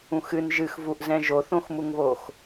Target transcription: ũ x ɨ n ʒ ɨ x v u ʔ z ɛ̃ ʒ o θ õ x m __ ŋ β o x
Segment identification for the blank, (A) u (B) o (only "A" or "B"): A